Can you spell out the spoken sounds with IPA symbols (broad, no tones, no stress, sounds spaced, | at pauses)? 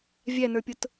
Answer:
vʲ æ n ə˞ pʲ ʊ t